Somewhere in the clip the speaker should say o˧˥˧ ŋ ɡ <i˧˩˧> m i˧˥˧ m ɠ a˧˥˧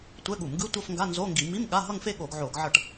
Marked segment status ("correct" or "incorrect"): correct